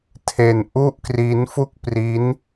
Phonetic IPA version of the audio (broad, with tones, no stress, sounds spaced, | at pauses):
tʰ e˧ n ʔ u˥˩ ʔ k r i˦˥ n f u˥˩ k̚ p r i˦˥ n